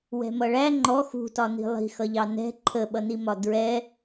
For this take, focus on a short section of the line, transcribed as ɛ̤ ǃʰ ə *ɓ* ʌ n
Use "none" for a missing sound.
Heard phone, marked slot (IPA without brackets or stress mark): ɓ